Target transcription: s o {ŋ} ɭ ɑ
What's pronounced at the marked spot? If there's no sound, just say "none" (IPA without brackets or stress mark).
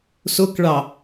k